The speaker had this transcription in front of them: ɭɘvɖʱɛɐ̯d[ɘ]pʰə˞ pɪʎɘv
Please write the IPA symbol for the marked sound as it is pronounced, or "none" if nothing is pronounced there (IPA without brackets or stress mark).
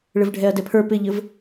ɛ